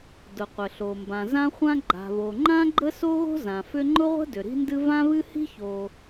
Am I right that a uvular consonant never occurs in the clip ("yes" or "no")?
no